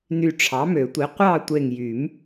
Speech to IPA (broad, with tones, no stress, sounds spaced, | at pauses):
n y˧˩ ʈ͡ʂʰ ɑ˩˥ m ø˨˩˦ tʷ i˩˥ qʷ ɑ˥˨ tʷ e˧˩ ŋ j y˨˩˦ m